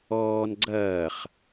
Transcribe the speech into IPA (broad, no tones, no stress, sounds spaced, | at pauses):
ɔː n ɡ͡ǀ ɐː χ